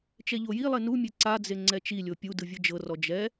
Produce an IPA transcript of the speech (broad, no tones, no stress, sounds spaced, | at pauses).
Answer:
t͡ʃ ɛ ʎ o j i lˠ e n u mʲ e ǀ a d͡z e ŋ͡ǀ ɛ t͡ʃ i lʲ o pʲ u d ɯ vʲ ɯ d͡ʒ ɤ r ɔ d͡ʒ ɛ